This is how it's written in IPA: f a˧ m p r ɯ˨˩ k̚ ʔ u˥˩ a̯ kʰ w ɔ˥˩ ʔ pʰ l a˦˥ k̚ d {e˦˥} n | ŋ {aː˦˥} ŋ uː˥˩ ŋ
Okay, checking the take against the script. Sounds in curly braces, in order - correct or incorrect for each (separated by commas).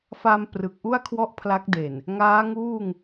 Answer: incorrect, correct